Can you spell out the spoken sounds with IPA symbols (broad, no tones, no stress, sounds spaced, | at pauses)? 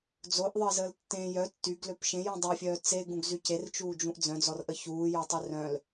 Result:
d͡z o ʔ ðˤ əː z əː l tː ẽ j œ tː y ɡ l ø p ʃ ẽ j ũ dˤ ø fʲ œː t͡s e ɡ ũ ɡ z y c e r t͡ʃ uː d͡ʒ ũ ʔ d͡z œ̃ d͡z ɔ r ʔ ə ç uː j ɔ tˤ ø r œ̃ l